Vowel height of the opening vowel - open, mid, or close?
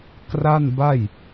open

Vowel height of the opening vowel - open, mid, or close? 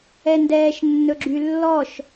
mid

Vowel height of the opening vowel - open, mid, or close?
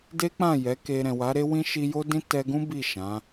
mid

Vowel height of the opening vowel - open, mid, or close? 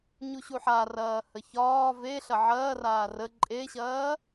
close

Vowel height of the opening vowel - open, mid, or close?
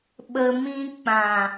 mid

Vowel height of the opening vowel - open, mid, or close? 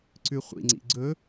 close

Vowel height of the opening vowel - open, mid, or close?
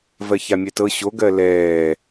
mid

